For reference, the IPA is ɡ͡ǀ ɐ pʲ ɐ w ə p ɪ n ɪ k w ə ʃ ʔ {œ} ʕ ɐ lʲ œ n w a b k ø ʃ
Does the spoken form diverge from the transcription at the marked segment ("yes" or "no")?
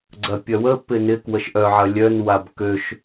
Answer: no